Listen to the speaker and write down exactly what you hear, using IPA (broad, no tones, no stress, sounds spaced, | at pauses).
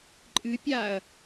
ǃʼ ɨ pʲ aː ɐ̯